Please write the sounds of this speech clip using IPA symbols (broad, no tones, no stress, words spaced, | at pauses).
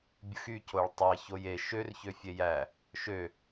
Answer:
bʲɯxy coɭtˤɑ çoje ʃør çøfʲejæ | ʃø